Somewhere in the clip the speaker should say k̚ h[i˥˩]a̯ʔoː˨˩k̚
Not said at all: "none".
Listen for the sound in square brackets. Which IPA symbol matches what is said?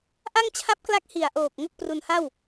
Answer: i˨˩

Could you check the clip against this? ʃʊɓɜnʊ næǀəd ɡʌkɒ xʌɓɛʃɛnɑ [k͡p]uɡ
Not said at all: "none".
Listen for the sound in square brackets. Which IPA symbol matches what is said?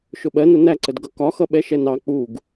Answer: k͡p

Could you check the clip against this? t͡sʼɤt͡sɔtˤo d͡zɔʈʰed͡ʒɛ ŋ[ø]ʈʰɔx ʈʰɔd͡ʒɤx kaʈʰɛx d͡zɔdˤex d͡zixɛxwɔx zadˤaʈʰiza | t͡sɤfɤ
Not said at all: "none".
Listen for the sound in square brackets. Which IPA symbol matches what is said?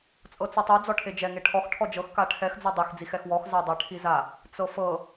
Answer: e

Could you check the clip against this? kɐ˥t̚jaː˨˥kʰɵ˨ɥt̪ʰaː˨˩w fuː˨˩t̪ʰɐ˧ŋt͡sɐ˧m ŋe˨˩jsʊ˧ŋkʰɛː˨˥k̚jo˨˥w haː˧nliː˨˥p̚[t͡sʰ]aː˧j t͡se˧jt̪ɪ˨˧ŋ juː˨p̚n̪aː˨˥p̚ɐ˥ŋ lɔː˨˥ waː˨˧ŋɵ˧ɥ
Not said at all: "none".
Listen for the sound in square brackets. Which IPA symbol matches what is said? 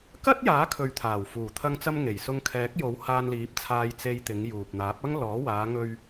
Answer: t͡sʰ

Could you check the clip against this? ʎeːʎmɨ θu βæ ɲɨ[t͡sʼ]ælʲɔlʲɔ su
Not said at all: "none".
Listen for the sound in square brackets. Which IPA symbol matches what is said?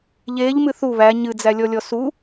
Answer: d͡z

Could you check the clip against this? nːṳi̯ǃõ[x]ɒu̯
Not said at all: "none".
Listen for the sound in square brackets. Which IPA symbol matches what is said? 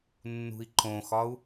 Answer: x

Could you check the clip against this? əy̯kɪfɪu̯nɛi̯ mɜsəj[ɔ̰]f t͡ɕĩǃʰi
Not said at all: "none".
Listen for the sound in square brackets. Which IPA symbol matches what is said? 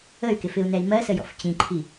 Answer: ɔ̰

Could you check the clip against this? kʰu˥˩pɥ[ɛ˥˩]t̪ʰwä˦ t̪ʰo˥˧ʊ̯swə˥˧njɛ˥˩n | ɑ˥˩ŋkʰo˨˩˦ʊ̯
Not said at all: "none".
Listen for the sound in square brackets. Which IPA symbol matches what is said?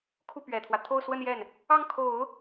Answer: ɛ˨˩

